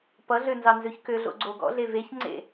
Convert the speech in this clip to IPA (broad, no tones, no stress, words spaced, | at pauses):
pʌɮø nzɑnzøçkøɮo̰ ɡ͡ǀoɡɔ̰ɮe veçŋ͡ǀḛ